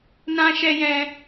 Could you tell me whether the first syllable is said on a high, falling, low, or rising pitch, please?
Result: high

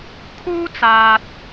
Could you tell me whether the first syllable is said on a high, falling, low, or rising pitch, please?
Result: high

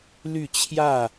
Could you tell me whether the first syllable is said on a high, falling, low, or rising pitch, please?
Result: falling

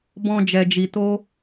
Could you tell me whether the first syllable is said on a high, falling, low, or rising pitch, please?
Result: high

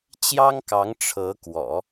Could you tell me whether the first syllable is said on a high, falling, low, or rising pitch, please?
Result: high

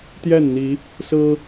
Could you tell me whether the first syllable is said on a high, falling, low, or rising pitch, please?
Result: falling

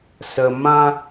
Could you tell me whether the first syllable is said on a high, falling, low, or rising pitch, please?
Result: low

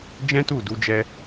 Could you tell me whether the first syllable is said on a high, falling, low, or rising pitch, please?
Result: high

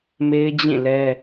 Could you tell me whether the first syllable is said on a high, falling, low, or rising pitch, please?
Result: high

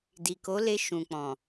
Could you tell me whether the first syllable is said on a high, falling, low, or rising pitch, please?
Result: low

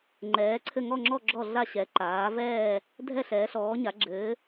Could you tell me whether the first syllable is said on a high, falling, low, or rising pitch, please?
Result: rising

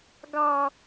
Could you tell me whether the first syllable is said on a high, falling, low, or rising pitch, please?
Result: low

